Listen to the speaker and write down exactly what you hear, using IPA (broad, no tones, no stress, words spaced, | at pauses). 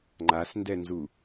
ŋ͡ǃasndɛnzu